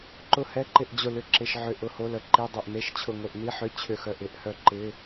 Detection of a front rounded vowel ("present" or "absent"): present